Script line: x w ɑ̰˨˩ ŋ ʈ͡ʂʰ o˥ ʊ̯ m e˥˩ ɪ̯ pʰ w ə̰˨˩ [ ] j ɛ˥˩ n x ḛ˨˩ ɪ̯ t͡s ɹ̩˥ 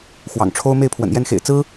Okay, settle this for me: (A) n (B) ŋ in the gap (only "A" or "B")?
A